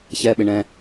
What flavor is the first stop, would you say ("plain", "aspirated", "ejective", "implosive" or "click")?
implosive